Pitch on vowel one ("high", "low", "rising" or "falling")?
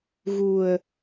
low